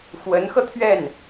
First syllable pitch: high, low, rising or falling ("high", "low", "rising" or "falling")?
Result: rising